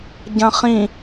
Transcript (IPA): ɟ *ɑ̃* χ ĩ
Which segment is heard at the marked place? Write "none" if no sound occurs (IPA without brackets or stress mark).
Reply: ɐ̃